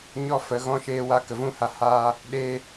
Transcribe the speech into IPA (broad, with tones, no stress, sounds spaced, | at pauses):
ɲ ɔ˦ f ə˨˦ ɣ ɔ̃˦ ʃ eː˦ w a˦ k ə˨ v ũ˦ h a˧ h aː˦ | ɗ eː˧